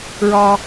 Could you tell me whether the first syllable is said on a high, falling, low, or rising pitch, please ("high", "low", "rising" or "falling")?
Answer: low